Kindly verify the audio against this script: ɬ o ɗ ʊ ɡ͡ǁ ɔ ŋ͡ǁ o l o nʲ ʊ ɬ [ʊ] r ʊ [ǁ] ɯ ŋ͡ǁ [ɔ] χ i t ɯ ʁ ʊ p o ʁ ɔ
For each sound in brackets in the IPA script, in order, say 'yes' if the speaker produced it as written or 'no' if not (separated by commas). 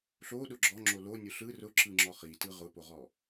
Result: no, yes, yes